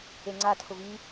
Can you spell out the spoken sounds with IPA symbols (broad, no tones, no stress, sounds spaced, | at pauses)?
e ŋ͡ǀ a tʰ ʊ v i